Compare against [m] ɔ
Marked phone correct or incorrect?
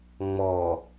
incorrect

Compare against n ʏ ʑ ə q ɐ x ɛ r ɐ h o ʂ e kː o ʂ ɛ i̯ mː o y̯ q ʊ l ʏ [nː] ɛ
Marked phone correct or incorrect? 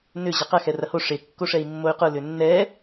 correct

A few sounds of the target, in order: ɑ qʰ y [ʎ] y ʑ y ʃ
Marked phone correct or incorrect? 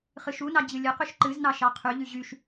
correct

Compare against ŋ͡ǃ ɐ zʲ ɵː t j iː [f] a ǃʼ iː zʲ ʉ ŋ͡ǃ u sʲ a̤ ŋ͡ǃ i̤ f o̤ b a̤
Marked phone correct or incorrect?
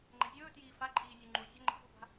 correct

